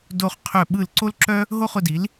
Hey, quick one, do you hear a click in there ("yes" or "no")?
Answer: yes